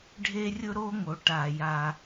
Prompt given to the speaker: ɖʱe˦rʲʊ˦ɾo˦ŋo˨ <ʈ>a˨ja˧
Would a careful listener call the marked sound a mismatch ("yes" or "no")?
no